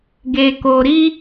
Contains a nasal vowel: no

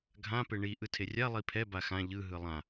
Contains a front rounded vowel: no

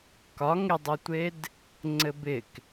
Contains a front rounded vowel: no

